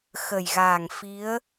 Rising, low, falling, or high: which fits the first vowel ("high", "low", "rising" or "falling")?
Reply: low